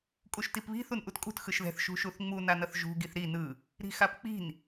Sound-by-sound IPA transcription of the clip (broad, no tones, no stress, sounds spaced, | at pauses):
kʼ u ʃ t i p β i̤ θ u n ʔ u t kʼ ṳ t x ɯ ʃ ð ɛ̤ θ ʃ ṳ ʃ u θ ŋ͡m u n a n ʌ θ ʒ ṳ ɡ i θ ɾ i n ɯ | ɾ i̤ x a p k͡p i̤ n